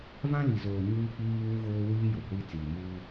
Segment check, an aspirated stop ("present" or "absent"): absent